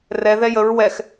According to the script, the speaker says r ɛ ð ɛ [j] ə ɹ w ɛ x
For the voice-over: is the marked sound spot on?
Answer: yes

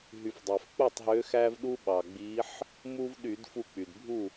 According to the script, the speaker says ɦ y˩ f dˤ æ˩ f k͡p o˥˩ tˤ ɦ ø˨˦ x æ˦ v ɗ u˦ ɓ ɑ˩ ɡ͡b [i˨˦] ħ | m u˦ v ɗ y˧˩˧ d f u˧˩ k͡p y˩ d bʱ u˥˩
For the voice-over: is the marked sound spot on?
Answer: yes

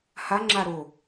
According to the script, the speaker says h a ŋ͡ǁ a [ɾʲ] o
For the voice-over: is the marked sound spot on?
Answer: no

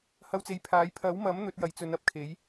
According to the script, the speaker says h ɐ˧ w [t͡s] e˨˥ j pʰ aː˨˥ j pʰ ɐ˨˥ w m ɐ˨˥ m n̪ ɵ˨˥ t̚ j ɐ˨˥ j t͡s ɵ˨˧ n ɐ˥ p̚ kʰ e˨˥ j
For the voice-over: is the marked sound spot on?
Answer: yes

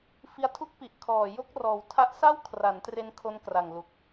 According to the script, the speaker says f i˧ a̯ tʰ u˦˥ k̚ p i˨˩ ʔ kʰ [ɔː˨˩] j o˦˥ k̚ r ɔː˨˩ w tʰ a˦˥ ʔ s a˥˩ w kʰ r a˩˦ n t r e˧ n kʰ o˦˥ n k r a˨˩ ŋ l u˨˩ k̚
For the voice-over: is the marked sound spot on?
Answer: yes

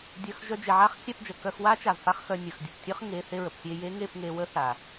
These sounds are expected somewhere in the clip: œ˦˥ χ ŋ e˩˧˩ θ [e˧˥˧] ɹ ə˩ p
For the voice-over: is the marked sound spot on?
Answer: no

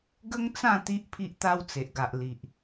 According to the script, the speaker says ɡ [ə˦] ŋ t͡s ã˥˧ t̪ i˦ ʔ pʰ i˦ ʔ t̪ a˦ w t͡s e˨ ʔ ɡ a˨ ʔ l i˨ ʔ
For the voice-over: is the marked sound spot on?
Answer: yes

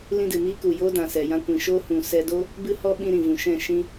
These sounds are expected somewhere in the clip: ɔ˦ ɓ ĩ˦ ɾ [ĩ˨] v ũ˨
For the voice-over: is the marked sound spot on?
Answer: yes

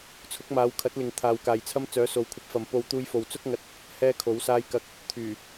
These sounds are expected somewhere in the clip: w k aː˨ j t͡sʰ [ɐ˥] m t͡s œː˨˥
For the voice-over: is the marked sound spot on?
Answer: yes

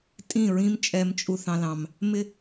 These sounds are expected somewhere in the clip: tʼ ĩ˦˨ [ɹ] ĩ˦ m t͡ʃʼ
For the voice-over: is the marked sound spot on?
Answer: yes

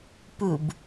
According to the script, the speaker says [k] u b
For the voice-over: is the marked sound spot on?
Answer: no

